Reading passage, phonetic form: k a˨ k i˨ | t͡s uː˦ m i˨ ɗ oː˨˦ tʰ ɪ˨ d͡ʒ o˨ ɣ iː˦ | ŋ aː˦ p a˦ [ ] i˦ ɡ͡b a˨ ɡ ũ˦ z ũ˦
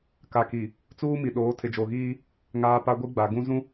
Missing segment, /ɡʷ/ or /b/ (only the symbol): ɡʷ